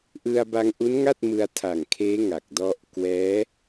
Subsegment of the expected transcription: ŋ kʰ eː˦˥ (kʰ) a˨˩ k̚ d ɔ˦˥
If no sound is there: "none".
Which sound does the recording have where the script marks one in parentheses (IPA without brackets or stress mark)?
ŋ